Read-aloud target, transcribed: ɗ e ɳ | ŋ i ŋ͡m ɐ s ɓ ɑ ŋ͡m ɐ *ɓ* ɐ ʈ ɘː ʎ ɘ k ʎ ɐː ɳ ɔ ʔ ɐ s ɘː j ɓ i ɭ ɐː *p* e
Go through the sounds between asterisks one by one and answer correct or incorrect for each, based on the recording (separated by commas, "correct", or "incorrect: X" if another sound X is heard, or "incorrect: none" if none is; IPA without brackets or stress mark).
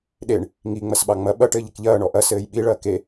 correct, incorrect: k